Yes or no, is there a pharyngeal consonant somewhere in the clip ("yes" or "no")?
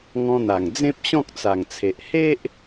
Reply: no